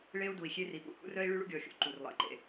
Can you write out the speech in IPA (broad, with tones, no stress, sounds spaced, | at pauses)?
ɭ e˦ u̯ d u˨ i̯ xʲ e˦ r i˨ p ṵ˦ h ṵ˦ r œ˦ i̯ ɭ y˦ ɭ ṵ˦ ɡʲ ɔ˨ xʲ ṵ˦ ǃ u˨ r lˠ ḛ˨ ǃ ḛ˦